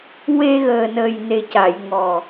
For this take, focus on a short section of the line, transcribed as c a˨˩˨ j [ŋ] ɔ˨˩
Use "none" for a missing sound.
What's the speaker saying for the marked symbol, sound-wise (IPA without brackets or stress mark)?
ŋ